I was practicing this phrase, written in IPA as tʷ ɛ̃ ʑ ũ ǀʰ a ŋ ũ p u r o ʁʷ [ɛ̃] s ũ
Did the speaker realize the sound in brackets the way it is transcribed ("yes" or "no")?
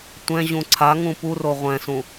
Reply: yes